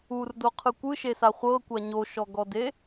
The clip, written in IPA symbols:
u r d o qʰ ɯ kʷ ɯ ʃ e s a χʷ ɤ kʷ a ɲ o ʃ ɔ ɡ ɔ d e

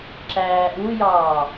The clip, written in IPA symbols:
ǁ æː ʔ u j ɑː

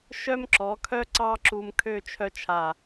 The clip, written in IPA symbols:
ʃ œ˥ m ǁ ɔ˩˧ kʰ œ˥ ǀ ɑ˥ ǁ u˧ m kʰ ø˥˧ t͡ʃʰ œ˥ t͡ʃʰ a˧˩

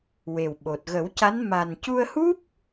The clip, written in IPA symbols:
w e˨˩ w ɓ o˨˩ t̚ ɣ ə˨˩˦ w c a˧˥ n m a˨˩ n c u˧ ə̯ h u˦˥ p̚

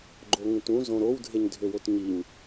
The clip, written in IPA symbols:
ɡ͡ǃ o ŋ ũ t ũ z õ ɾ o w dʱ e ɲ dʱ ø w o t ɲ i ɲ

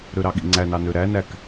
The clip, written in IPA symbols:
ɾ ø ɾ ɑ ɠ ḭ ŋ͡ǀ æ n ɑ n ø ɾ æ n æ k

